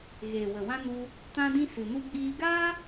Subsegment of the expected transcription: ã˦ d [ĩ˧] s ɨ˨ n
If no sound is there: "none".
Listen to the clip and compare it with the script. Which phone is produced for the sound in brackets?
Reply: ĩ˦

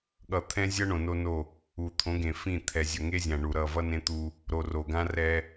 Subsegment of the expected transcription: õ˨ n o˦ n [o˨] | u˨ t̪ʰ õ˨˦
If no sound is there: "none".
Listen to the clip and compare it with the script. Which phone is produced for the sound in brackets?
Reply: o˦˨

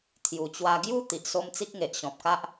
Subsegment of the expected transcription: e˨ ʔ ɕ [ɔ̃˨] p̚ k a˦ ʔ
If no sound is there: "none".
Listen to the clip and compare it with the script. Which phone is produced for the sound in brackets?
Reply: ɔ̃˨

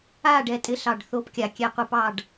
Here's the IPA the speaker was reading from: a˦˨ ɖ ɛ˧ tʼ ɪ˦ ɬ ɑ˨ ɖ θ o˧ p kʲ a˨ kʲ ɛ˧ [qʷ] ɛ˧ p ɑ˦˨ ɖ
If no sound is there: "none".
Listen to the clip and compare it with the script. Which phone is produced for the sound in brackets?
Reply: qʷ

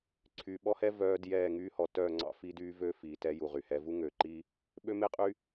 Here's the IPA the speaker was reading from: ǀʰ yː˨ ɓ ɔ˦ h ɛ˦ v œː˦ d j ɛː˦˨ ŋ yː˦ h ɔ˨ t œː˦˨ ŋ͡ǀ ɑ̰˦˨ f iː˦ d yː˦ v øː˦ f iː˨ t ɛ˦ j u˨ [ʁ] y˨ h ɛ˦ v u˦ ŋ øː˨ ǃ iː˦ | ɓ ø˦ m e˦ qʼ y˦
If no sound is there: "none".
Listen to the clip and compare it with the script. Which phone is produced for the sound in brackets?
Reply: ʁ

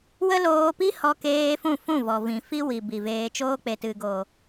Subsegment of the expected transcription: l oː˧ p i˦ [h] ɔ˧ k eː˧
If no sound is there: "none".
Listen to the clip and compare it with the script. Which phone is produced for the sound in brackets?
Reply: h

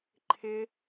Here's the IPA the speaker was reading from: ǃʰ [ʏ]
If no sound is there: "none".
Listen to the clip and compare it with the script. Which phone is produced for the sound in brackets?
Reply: ɪ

